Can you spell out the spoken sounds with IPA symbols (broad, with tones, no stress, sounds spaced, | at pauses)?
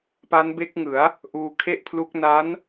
p a˦˥ n b e˦˥ k̚ ŋ ɯ˩˦ a̯ | ʔ uː˧ kʰ e˥˩ ʔ pʰ l u˦˥ k̚ n a˦˥ n